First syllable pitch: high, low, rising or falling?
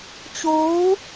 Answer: rising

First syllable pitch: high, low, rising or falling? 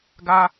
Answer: high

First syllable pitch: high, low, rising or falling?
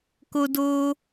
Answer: high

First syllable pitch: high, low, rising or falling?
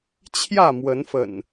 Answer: falling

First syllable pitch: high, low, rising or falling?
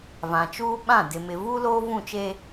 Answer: low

